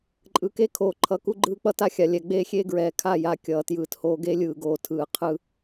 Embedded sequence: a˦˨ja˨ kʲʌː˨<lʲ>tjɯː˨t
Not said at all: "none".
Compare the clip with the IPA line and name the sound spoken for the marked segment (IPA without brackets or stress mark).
none